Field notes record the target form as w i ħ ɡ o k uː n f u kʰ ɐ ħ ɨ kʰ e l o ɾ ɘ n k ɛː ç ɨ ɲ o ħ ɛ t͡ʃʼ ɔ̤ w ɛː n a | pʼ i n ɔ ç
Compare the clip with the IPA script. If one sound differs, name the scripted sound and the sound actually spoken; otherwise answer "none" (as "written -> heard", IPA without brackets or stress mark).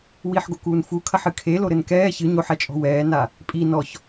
none